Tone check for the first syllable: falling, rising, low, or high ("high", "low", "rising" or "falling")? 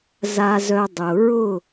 low